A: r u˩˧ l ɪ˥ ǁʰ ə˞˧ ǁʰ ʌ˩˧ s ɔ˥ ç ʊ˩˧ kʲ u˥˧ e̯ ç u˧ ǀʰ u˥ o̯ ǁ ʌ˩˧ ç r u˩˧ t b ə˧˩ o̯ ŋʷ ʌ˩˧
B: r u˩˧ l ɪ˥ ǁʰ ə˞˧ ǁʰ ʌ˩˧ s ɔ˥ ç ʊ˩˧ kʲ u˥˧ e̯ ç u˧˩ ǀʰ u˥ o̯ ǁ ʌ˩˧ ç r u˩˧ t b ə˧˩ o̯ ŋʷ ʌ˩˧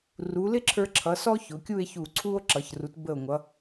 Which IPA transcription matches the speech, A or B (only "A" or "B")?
B